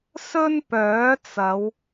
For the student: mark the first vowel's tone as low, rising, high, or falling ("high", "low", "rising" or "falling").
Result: high